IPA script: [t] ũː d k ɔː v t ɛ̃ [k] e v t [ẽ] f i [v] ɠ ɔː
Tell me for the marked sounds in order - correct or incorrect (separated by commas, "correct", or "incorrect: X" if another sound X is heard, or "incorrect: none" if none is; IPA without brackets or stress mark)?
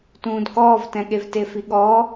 correct, incorrect: ɠ, incorrect: e, incorrect: none